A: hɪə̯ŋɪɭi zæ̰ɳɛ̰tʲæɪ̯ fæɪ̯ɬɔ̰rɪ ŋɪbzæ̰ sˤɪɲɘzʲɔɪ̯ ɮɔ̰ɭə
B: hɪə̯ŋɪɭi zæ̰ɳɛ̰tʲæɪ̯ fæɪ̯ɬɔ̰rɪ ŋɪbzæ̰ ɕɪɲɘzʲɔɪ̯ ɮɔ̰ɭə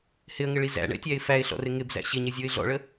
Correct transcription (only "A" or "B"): B